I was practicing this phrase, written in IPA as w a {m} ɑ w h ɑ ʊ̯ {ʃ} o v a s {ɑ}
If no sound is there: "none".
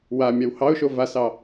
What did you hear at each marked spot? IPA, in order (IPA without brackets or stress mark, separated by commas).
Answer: mʲ, ʃ, ɑ